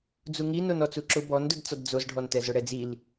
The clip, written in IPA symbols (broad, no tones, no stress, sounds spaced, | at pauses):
d͡z u ŋ i n o n ɔ t͡s u ǁ ʊ b ɔ n d ʊ d t͡s ɔ d d͡z o z ɖʱ ɔ n t ɛ z ʊ ɽ ɛ d͡z i l